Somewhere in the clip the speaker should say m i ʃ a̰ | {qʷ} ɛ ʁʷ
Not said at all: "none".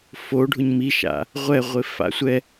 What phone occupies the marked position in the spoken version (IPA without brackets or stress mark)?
ʁʷ